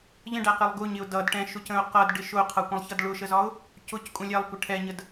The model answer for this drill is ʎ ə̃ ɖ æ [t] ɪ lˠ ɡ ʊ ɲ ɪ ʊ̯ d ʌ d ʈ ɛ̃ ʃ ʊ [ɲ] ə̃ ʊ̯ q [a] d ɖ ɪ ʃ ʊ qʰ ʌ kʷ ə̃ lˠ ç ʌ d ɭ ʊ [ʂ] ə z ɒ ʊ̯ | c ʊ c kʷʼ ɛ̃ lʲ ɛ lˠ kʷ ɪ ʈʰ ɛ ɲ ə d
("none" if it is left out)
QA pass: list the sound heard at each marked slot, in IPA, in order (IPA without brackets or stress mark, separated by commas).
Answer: q, c, ʌ, ʃ